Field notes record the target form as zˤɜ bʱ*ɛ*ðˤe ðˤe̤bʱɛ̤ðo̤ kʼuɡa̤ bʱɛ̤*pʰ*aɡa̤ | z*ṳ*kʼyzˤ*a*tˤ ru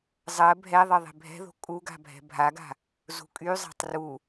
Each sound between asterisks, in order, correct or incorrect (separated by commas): correct, incorrect, correct, incorrect